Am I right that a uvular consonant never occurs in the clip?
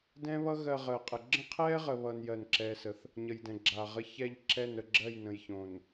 no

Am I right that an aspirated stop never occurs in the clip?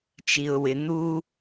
yes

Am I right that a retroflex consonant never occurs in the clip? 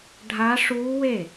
no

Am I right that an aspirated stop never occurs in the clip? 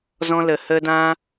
yes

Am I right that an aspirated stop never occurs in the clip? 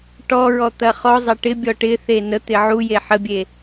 yes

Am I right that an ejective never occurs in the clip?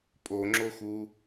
no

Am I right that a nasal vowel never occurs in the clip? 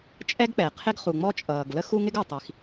yes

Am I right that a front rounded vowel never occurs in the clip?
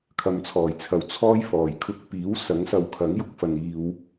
yes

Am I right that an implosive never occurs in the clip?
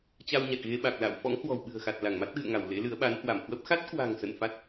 no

